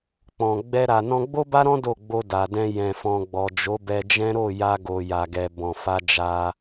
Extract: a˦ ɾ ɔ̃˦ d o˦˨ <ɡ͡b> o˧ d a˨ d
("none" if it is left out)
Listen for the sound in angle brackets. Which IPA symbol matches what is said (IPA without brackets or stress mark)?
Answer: ɡ͡b